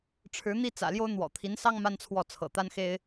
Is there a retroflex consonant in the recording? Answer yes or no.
yes